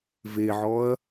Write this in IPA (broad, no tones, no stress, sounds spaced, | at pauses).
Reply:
v e ʕ ɔ ɐ̯